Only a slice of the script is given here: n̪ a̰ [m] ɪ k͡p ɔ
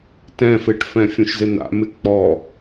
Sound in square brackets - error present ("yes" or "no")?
no